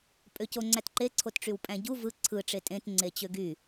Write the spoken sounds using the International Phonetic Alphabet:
pʼ ø c o ŋ͡ǀ æ t ǃ e ǀʰ o t ʈ͡ʂ y w pʼ æ̃ ɟ u v ɯ ǀʰ ɯ ʈ͡ʂ e tʼ ẽ t ŋ͡ǀ e t͡ɕ ø ɡ y

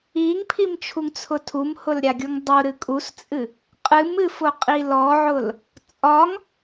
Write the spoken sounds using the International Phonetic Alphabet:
i ŋ pʰ i m t͡ʃʰ u ŋ t͡sʰ ʊ tʰ u m h ʊ l ɾʲ a ɡʲ u ŋ dˤ u ɾ ɨ kʼ u s t͡sʼ ɨ | qʼ ɨ m ɨ f ʊ qʼ i l ɔ ʕ ʊ l | t͡sʼ ɒ ŋ

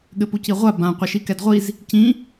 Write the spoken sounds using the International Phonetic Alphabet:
ɠ ɘ p u c i ʁʷ a b ã qʷ ɘ ʃ i k ɛ d ʁʷ i z | c ĩ

